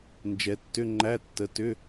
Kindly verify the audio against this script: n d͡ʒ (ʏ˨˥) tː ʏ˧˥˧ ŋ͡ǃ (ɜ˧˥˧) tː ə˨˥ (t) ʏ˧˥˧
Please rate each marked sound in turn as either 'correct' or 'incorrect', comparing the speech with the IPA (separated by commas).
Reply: incorrect, incorrect, correct